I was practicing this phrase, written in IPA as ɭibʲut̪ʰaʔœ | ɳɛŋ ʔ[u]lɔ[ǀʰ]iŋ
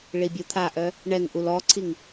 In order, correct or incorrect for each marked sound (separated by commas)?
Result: correct, correct